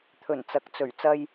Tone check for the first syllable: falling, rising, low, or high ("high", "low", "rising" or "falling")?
low